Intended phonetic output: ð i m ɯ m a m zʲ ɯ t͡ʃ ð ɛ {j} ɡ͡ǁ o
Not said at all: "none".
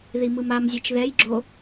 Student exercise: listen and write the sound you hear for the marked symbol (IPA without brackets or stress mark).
j